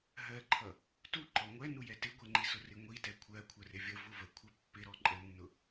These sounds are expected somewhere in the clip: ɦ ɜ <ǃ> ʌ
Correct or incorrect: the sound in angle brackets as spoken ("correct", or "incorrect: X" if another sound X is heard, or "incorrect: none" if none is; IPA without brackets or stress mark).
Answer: incorrect: ǃʰ